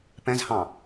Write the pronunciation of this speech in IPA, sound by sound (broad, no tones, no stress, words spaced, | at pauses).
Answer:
pɛ̃zhɑ̃